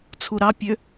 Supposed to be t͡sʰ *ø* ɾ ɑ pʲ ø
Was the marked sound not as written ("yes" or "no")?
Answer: yes